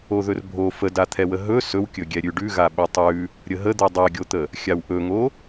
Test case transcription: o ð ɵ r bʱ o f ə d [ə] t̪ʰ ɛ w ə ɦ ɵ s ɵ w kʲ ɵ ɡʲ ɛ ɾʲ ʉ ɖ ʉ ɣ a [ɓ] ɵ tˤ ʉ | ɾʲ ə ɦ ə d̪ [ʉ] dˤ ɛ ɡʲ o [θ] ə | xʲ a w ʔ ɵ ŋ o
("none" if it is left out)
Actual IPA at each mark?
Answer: a, ɓ, ʉ, t̪

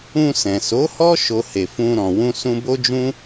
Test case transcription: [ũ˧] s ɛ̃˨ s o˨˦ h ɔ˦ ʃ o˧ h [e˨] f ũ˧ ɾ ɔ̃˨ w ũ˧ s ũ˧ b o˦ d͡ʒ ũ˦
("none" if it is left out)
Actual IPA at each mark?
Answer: ũ˧, e˨

